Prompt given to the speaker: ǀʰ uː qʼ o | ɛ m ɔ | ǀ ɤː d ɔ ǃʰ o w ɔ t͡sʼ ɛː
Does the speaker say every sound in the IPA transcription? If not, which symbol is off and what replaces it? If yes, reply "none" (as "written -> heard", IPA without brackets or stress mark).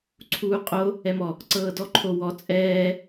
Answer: none